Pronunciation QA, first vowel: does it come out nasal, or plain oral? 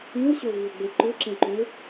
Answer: nasal